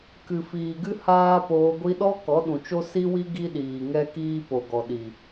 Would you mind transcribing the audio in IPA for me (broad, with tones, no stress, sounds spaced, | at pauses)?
k ɨ˨ f iː˨ ɡ ɨ˦ h aː˦ p oː˧ ɡʷ i˧ ɗ ɔ˦ k ɔ˨˦ ɗ ũ˨ t͡ʃ o˦ s i˦ w i˦ ɡ i˦ ɗ iː˨ ŋ ɛ˦ k iː˦ p o˨ ɡ ɔ˨ ɗ i˨